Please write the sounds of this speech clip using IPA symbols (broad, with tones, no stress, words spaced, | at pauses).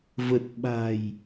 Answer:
və˨˩t̚ ɓa̤˨˩j